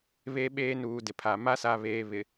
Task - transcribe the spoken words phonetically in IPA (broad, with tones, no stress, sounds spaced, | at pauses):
β e˦ ɓ eː˦ n uː˨ d ɪ˨ pʰ a˨ m a˦ s a˨ β eː˨ β ɪ˨